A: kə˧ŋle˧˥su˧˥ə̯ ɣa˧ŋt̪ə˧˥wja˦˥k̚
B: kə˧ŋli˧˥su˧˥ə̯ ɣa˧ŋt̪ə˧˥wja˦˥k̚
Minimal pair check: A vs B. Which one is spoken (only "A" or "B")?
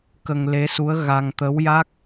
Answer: A